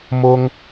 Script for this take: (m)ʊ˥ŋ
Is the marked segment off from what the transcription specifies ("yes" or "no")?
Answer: no